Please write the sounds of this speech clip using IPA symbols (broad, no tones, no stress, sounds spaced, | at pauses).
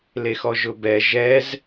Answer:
l e x ɔ ʒ ʊ b ɛ ʒ ɛ z